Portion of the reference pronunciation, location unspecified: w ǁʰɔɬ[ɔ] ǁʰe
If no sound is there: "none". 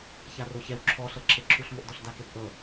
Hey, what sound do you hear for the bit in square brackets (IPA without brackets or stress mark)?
ɤ